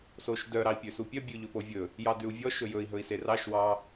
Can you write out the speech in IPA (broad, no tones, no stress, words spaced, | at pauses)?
soʃdœ ɾɑi̯pʲøsupʲœ bʲʉʎɵpovʲɵ | jɑdʉu̯vʲɔ ʃɵjɵi̯ ɦɵi̯serɑʃ wɑ